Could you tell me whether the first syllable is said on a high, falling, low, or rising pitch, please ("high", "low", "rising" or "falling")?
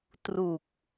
low